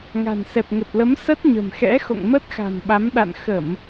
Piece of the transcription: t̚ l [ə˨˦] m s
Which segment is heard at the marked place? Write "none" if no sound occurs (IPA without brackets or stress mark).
ə˨˦